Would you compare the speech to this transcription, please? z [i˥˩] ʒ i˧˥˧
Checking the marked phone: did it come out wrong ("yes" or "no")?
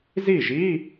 no